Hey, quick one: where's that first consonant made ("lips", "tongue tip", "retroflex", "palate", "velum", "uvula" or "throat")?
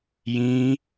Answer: palate